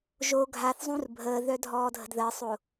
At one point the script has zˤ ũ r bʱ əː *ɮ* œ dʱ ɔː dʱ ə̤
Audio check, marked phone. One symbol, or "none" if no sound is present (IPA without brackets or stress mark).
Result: ð